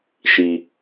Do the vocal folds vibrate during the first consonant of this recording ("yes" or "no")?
no